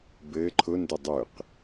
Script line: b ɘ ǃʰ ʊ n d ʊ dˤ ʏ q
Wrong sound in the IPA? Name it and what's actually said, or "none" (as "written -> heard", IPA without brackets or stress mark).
none